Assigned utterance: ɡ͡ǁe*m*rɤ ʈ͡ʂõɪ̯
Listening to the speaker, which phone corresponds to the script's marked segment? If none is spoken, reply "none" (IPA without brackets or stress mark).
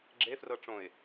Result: f